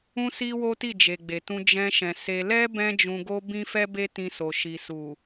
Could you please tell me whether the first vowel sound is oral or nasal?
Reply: nasal